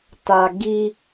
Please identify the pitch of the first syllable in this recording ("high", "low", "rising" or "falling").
low